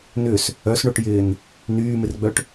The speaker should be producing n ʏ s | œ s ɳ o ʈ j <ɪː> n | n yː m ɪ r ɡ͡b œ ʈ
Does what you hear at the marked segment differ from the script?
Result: no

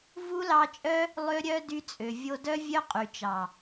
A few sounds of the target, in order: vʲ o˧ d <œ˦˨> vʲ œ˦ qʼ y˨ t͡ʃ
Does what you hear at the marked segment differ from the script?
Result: yes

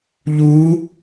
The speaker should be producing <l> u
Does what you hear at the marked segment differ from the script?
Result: yes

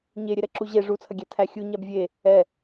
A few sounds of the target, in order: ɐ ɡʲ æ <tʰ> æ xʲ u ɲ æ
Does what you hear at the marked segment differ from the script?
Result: no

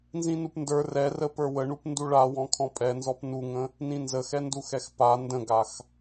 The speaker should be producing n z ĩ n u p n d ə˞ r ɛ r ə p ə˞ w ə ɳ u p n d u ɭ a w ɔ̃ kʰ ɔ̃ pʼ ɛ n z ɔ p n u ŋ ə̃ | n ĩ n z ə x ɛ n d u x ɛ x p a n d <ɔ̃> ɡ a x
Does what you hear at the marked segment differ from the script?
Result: yes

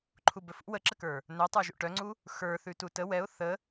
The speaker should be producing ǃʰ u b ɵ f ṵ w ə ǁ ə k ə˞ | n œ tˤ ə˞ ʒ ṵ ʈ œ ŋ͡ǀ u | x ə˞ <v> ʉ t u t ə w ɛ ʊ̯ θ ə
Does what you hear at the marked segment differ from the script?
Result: yes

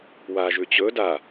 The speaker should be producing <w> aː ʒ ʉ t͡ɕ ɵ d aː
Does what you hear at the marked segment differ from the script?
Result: no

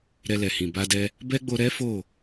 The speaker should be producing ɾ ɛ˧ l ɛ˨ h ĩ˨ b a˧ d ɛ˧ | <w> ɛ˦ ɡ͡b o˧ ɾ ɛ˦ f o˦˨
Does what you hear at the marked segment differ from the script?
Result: yes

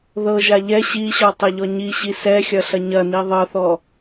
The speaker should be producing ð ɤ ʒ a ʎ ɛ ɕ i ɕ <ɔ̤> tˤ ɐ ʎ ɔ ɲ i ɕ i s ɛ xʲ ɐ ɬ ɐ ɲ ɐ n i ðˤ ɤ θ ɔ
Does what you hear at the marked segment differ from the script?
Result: yes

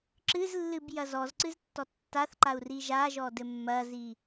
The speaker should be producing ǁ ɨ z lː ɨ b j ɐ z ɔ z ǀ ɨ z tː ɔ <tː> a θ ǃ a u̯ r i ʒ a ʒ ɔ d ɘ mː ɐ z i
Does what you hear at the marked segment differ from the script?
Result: no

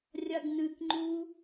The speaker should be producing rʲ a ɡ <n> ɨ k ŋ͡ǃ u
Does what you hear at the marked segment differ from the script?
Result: no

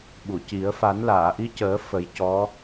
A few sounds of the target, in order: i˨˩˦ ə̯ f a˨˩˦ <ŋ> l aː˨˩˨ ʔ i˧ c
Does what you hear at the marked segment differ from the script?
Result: yes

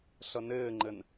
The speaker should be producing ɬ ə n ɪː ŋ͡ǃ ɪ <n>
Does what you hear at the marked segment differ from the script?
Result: no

